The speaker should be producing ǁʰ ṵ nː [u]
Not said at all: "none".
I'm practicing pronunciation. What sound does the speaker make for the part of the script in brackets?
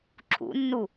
u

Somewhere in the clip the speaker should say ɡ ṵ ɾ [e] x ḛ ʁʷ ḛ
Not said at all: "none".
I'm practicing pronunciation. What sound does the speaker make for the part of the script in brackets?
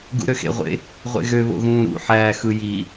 ø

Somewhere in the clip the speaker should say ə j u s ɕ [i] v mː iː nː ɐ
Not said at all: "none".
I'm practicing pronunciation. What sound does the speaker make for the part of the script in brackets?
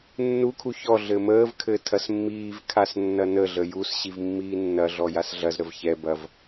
i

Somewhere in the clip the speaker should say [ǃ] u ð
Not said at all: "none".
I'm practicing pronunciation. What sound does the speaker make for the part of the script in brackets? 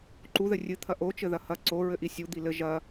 ǃ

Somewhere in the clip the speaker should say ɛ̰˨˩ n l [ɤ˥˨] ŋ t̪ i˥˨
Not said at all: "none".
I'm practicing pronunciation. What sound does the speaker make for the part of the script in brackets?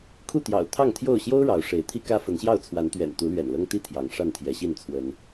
ɤ˦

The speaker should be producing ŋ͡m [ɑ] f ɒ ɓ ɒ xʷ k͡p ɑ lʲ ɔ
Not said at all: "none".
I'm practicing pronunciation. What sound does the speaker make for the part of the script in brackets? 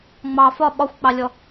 ɑ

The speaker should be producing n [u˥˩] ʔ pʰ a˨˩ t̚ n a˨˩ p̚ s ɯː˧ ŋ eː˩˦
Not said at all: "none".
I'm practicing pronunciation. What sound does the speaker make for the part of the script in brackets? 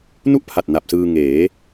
u˥˩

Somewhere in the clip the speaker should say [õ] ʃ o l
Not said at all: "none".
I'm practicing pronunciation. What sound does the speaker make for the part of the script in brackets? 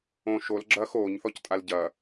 õ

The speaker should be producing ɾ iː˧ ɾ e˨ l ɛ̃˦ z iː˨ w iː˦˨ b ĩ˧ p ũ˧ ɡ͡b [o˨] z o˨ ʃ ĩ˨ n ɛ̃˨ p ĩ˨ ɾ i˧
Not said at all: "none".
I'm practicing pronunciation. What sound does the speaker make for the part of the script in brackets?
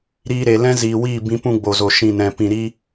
o˨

